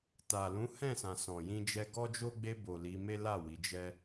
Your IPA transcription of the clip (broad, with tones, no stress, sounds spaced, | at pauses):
t a˨ l ũ˨˦ h ɛ̃˦˨ s ã˨ s ɔ̃˨ j ĩ˧ d͡ʒ ɛ˧ ɡ ɔ˦ d͡ʒ o˦ ɡ͡b e˧ b o˨ l i˨˦ m e˦ l a˦˨ w i˨˦ d͡ʒ ɛ˦